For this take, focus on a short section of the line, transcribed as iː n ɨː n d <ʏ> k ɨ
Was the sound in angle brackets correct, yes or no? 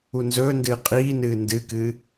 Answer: no